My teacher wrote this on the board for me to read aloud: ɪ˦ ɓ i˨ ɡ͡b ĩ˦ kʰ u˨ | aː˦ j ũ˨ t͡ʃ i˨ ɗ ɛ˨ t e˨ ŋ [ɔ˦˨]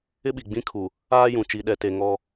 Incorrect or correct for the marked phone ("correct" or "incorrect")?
incorrect